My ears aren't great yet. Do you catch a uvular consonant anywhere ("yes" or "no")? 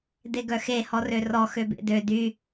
no